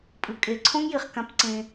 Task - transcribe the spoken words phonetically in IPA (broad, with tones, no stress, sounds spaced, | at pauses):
pʼ ɯ˨ kʼ e˨ ǀʰ õ˦ ŋ j i˨ χ k ã˦ p ǀ ẽ˦